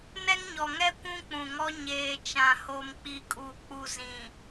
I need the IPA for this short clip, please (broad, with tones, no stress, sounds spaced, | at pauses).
n ɛ˦ ŋ ɲ ɔ˨ ŋ ɛ˦ kʷ ũ˦ k͡p ũ˨ ŋ ɔ˦ ɲ eː˨ t͡ʃ ã˨ h o˨ m k͡p i˨ kʼ u˨ k͡p u˨ z ĩ˨